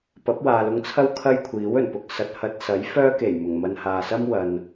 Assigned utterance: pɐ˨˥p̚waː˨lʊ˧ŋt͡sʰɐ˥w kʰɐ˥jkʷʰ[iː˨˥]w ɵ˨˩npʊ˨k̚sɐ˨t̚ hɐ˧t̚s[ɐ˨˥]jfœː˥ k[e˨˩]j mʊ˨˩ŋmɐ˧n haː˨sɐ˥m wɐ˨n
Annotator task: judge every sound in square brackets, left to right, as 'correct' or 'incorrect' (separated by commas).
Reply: correct, correct, correct